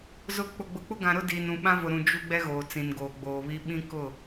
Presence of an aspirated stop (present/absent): absent